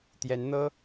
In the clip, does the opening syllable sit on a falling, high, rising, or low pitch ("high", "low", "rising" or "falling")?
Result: rising